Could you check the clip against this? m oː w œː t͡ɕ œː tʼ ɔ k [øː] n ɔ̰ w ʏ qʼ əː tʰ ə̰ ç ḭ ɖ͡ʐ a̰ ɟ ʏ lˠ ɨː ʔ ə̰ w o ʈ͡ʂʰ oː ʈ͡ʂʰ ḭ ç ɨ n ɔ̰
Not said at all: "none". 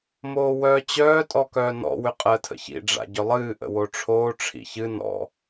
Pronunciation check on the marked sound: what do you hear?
œː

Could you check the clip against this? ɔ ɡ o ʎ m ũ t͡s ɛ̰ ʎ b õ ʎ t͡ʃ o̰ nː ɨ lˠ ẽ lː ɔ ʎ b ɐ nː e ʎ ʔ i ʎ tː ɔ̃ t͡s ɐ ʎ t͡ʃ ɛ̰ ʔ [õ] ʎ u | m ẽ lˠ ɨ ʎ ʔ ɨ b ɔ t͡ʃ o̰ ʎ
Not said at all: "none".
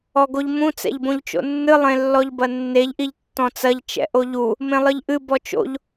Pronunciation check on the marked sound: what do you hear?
o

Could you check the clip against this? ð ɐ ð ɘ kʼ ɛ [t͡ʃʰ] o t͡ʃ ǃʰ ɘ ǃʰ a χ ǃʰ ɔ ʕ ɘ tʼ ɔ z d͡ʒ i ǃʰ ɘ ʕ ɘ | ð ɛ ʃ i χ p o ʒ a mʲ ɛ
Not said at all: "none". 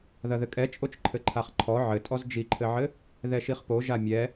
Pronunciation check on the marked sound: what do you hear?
t͡ʃʼ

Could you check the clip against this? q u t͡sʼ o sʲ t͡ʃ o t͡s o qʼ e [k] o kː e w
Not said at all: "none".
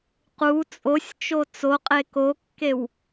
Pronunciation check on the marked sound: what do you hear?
k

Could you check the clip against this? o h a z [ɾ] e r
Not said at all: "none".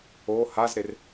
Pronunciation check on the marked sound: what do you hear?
ɾ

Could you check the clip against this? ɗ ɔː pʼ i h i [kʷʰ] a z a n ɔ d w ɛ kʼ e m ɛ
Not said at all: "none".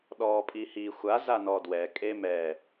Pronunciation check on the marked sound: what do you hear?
xʷ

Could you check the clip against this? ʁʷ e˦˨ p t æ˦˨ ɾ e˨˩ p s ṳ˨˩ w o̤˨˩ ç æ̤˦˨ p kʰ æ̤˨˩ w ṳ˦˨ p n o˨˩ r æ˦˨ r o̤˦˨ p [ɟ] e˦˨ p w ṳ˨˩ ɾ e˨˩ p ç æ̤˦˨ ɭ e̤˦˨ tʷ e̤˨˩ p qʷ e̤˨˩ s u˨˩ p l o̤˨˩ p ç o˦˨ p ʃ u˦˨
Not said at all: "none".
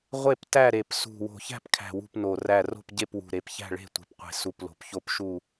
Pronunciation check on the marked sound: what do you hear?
ɟ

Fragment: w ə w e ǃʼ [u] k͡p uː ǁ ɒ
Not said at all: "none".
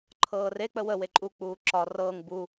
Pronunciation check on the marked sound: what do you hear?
u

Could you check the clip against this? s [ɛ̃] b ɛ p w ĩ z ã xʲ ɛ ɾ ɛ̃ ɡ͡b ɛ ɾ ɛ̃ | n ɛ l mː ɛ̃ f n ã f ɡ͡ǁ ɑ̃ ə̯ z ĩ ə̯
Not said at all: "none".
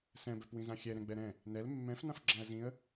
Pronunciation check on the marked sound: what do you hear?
ɛ̃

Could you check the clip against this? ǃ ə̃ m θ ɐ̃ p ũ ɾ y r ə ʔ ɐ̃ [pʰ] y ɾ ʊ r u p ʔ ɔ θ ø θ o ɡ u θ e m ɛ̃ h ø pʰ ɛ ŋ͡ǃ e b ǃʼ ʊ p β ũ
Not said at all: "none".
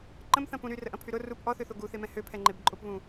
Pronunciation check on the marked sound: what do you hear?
pʰ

